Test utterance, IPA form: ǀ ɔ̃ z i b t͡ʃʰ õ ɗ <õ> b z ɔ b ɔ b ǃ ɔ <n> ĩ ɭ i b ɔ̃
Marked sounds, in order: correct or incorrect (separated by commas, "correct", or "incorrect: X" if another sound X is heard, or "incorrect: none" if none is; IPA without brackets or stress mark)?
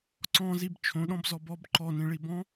incorrect: ɔ̃, correct